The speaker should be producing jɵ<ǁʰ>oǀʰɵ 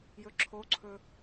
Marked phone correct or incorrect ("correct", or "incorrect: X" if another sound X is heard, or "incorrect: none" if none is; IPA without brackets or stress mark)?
correct